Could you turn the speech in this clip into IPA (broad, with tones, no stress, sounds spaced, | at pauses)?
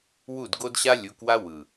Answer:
w u˥˩ d ɡ o˥ d ɕ a˥ lʲ u˨˦ k w a˥ w ɯ˨˩